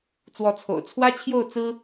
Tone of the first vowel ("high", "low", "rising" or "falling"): rising